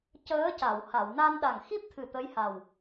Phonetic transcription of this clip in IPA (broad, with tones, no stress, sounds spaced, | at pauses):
c əː˧˥ c a˨˩˨ w h a˨˩˨ w n a˧ n ɗ a˨˩ ŋ x i˦˥ p̚ t̪ʰ ɨ˨˩ t̪ ə˧˥ j h a˨˩ w